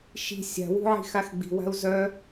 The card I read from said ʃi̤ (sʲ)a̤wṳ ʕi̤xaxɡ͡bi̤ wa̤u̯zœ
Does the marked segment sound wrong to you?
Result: no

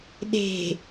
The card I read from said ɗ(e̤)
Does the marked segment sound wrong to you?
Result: no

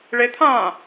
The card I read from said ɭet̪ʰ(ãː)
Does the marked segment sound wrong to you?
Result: no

